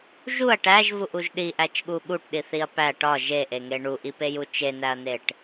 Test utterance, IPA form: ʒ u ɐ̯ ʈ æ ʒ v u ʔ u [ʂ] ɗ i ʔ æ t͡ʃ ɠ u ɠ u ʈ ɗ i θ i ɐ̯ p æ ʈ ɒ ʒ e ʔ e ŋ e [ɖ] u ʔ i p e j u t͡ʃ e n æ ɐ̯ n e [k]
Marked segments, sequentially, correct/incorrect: incorrect, incorrect, incorrect

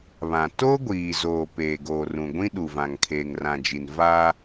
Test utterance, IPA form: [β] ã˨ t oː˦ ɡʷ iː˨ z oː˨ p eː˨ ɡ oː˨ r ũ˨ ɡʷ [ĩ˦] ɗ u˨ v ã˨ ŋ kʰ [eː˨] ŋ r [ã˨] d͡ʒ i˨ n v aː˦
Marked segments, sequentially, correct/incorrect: correct, correct, correct, correct

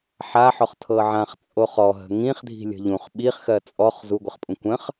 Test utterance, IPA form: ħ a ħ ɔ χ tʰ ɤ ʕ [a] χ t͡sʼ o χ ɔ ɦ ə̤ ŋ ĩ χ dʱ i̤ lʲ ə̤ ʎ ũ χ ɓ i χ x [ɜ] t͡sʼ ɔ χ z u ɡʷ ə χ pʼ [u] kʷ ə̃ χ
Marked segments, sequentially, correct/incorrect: incorrect, correct, incorrect

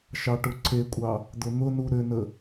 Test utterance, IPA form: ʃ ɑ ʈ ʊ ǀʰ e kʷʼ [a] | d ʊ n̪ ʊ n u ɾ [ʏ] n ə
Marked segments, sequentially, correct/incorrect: incorrect, correct

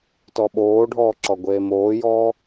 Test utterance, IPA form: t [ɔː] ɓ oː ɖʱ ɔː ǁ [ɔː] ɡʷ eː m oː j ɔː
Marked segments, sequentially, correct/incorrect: incorrect, incorrect

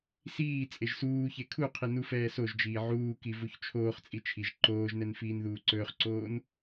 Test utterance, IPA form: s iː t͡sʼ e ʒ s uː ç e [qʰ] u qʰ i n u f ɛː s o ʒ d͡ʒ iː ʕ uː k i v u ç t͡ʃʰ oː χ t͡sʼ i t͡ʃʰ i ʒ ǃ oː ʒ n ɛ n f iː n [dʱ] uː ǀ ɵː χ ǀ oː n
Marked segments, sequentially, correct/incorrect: incorrect, incorrect

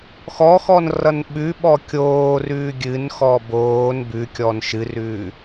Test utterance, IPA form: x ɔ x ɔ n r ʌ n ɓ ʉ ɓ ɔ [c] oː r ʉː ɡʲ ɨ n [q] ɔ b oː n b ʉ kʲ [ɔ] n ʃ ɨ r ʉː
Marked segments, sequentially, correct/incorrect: incorrect, incorrect, correct

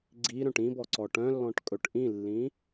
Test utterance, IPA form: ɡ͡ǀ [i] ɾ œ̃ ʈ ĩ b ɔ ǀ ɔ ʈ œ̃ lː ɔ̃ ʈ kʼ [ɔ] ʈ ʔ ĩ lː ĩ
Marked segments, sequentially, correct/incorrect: correct, incorrect

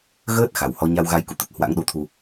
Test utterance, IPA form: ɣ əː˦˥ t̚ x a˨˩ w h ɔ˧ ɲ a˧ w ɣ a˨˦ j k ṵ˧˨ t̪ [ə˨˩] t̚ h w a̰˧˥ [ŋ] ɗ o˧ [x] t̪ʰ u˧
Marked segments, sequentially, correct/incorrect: correct, correct, incorrect

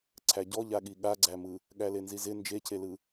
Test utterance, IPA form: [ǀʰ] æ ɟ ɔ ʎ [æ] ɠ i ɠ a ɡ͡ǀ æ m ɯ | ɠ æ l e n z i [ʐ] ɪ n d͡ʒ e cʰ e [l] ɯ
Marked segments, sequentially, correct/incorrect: correct, incorrect, incorrect, correct

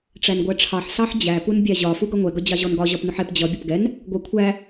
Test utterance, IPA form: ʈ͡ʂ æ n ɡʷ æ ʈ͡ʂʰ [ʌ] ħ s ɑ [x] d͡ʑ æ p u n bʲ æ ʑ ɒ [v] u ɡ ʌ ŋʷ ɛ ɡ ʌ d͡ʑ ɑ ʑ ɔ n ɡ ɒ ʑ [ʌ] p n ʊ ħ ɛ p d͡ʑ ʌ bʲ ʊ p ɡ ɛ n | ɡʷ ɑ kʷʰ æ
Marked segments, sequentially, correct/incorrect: incorrect, incorrect, incorrect, incorrect

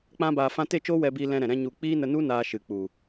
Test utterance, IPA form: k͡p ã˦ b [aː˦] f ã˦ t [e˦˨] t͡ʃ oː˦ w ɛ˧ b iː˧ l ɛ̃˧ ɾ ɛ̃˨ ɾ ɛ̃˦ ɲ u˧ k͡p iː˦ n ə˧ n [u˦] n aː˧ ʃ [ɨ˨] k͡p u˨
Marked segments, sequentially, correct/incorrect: incorrect, correct, correct, correct

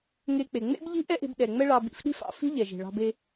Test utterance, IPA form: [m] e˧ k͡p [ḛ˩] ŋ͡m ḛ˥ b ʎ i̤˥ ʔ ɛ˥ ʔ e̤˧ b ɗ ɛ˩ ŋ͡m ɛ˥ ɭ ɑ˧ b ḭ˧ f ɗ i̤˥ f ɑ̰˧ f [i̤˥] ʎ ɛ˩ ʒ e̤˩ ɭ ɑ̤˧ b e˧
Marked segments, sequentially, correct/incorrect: incorrect, incorrect, correct

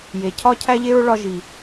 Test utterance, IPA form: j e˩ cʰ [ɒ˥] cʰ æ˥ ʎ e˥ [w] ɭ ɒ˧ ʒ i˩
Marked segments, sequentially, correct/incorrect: correct, incorrect

